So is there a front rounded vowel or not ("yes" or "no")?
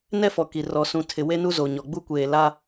no